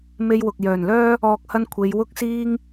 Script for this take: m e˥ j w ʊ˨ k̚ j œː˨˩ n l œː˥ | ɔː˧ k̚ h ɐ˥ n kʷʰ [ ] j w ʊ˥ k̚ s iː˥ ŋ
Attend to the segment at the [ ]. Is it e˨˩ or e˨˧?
e˨˧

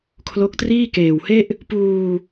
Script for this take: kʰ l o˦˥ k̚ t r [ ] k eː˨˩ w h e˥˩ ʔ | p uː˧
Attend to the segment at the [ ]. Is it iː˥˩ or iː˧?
iː˥˩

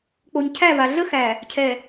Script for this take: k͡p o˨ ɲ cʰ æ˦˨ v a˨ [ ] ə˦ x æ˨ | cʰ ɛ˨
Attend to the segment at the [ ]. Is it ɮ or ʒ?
ɮ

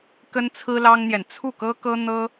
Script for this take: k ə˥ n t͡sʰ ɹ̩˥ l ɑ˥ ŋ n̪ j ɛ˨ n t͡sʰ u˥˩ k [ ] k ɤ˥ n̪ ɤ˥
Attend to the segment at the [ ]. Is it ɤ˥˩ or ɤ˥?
ɤ˥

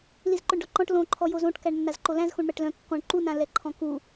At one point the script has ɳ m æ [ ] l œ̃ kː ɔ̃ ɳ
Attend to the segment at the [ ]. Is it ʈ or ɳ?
ʈ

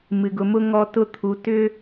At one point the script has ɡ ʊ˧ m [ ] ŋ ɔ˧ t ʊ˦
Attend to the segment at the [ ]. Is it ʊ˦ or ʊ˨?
ʊ˦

